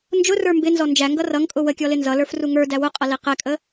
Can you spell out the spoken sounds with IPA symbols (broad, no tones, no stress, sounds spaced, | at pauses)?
n d͡ʒ ʊ r ə˞ m b ɪ n z ɔ n d͡ʒ æ ŋ ɡ ʌ r ʌ ŋ kʼ ʊ w ə kʲ ɔ l ɪ n z ʌ l ə˞ f r u ŋ ə˞ d æ w ʊ qʼ ʌ l i q ɛ kʼ ə